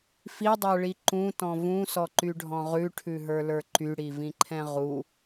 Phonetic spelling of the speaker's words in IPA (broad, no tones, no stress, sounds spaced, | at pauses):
f i dˤ ə˞ ɭ i ǃ ũ t ɔ̃ v ũ s ɔ ǃ y ɖʱ ɔ̃ ʁ ʉ ʈʰ ʉ ɦ ə˞ l ə˞ ǃ y ɽ i v ĩ ǃʰ ɛ̃ ʁ u